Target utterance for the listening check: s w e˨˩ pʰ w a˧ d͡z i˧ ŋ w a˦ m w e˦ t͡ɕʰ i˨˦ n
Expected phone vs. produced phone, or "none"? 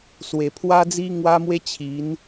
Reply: none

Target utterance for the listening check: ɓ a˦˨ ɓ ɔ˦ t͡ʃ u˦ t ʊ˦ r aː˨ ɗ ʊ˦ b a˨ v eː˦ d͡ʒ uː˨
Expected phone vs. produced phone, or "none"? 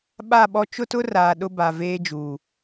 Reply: u˦ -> ʊ˦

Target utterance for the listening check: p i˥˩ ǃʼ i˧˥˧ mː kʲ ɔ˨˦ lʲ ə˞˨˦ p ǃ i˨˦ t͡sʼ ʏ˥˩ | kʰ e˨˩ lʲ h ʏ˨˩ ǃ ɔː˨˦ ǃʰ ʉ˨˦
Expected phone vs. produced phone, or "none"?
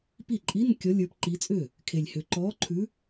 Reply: mː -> n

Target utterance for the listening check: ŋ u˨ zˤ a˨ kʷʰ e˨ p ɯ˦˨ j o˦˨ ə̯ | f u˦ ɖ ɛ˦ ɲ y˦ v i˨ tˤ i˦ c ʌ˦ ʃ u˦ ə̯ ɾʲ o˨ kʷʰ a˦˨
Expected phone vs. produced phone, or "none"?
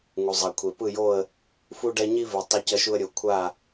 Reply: y˦ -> i˦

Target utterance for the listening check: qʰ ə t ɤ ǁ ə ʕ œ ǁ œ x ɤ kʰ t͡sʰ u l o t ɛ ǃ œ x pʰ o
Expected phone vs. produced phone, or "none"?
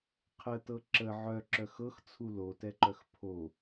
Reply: kʰ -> x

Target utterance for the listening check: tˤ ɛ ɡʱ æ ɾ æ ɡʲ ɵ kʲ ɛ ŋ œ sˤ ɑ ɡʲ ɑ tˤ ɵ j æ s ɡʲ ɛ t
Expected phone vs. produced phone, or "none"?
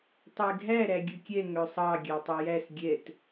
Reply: none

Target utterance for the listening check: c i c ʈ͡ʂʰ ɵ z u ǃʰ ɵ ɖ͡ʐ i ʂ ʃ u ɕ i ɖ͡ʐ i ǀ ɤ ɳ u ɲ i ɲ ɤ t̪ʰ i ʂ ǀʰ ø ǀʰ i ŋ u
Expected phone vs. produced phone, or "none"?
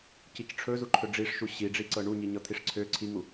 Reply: none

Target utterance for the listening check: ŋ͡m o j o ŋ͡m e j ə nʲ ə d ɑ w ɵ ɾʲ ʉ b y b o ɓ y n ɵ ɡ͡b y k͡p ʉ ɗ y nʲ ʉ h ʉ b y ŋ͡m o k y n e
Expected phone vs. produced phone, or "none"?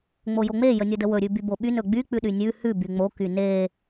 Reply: ɑ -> ə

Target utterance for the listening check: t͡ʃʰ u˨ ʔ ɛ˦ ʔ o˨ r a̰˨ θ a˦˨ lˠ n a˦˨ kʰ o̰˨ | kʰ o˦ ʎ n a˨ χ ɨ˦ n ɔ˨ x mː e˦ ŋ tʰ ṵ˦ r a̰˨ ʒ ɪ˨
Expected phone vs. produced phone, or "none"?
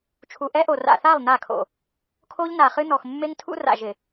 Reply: none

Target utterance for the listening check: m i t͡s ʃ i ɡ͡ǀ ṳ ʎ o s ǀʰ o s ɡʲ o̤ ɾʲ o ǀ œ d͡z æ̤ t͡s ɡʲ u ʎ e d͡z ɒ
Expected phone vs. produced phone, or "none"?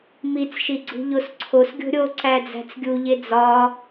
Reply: œ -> æ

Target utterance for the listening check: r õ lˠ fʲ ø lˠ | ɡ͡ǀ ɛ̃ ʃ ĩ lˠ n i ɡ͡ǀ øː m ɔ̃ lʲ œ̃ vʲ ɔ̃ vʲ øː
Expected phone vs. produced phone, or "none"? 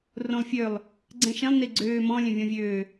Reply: none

